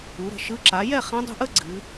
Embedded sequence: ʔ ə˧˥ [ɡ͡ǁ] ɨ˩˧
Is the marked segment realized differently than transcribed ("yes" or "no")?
yes